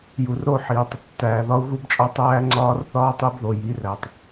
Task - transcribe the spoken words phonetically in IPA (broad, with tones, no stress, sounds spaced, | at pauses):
j u˨ r ɾ o˦˨ ħ iː˨ tˤ | t æː˨ ð ɒ˦ u̯ ɣ u˦ b t͡ʃʼ ɒ˦ tˤ æː˦ ŋ͡ǀ ɒː˦ r θ ɒː˦ tˤ e˦ b ð o˨ j i˨˦ r æ˨ tˤ